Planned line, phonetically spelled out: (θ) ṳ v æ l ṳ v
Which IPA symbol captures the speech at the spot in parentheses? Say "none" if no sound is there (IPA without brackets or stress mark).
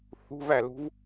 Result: θ